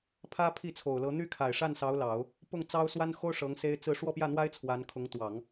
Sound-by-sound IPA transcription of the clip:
pʰ ä˥ pʰ i˥˩ t͡sʰ o˨˩ ʊ̯ l ɤ˧˥ n̪ y˥ kʰ a˨˩ ɪ̯ ʂ a˥˩ n s ɑ˧˥ ʊ̯ l ɑ˨˩˦ ʊ̯ | p ʊ˥˩ ŋ t͡s ɑ˥ ʊ̯ s w a˥ n x o˥ ʊ̯ ʂ ɤ˧˥ ŋ s e˥ ɪ̯ t͡s ɹ̩˥˧ ʂ w ɔ˥˧ p j ä˥˩ n̪ w a˥ ɪ̯ t͡sʰ w a˧˥ n kʰ ʊ˧˥ ŋ t̪ w ɑ˨˩˦ ŋ

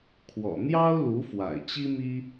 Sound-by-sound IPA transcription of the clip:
kʰ w ɔ̰˨˩ n̪ j ɑ˥ ʊ̯ l u˧˥ f w a̰˨˩ ɪ̯ t͡ɕ i˥ m i˥

